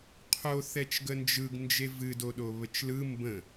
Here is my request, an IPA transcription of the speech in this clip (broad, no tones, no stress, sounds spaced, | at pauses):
qʰ o θ ɛ t͡ʃ ɡ ə n d͡ʒ ɯ ɡ n d͡ʒ e v ɨ d o ɗ o β ə t͡ʃ l ɯ m b ə̃